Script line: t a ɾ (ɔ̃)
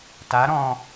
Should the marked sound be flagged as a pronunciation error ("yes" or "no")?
no